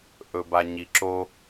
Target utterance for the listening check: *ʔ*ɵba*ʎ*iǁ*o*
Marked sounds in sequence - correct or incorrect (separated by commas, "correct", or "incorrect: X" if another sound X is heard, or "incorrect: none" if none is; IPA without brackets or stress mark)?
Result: correct, incorrect: ɲ, correct